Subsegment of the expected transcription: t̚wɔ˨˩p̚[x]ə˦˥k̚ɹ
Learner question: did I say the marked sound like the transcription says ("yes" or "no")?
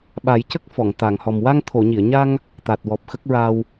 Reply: yes